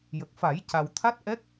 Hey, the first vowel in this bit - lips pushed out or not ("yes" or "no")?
no